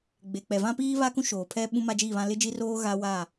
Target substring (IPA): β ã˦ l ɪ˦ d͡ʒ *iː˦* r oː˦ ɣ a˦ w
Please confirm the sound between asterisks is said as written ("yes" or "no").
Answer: no